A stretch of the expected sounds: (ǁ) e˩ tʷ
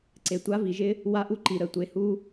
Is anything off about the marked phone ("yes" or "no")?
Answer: yes